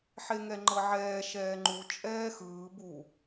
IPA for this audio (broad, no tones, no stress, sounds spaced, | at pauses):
ħ e ŋ ɛ ŋ͡ǃ ɤ ʕ ɛː ʃ ɛː ŋ͡ǃ u t͡ʃʼ ɛː x ɯː b u